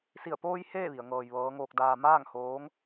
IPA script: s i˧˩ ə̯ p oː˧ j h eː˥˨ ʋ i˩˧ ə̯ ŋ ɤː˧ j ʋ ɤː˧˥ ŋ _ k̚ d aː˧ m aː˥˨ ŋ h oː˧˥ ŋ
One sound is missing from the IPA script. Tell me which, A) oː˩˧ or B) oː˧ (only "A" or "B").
B